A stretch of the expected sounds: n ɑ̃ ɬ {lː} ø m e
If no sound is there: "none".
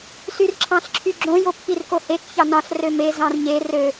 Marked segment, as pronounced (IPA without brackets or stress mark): r